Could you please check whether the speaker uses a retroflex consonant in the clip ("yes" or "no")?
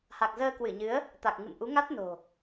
no